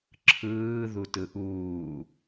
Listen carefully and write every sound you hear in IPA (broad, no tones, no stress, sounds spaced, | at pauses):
ǁʰ ɯː ð u t ɯ ʔ uː